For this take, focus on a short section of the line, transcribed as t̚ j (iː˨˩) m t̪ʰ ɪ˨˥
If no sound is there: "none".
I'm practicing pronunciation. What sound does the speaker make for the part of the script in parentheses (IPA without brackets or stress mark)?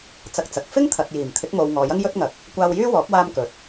iː˨˩